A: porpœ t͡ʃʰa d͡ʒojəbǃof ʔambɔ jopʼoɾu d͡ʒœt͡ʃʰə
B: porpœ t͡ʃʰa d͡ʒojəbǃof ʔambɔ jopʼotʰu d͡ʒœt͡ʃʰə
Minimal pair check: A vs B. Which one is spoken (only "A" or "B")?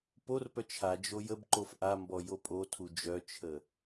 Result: B